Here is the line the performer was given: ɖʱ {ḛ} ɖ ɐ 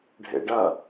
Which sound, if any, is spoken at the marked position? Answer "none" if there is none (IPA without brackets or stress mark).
ḛ